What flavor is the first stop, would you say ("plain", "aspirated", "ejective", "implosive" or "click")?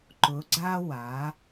click